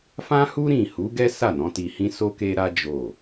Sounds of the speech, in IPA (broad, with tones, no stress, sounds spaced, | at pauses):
f ã˦ h u˦ ɾ ĩ˦˨ h u˨˦ ɡ ɛ˦ s a˦˨ n ɔ̃˨˦ t i˧ h ĩ˦ s o˦ k e˦ ɾ a˦ d͡ʒ o˦˨